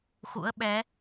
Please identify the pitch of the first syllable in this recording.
rising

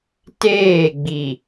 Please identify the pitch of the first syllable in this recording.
falling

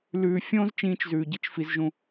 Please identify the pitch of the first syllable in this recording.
low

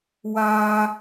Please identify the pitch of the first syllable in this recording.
high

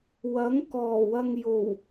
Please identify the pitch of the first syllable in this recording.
rising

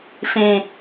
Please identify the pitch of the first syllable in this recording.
low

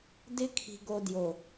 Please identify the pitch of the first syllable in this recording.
high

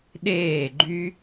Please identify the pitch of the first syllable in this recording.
falling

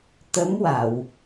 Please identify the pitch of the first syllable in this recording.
rising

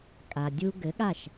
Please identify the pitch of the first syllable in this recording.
low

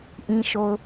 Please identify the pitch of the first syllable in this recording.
low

